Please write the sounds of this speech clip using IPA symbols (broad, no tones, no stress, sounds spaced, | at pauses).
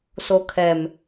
s o kʰ ɛ m